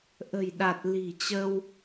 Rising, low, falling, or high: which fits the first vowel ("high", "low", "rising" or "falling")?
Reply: low